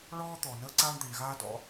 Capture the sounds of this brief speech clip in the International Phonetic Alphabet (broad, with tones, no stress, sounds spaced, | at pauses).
ɭ ɔː˥ t̪ ɔ˩ n əː˥ ǀ aː˥ ɳ d̪ i˩ ɳ ɣ aː˥ d ɔ̰˥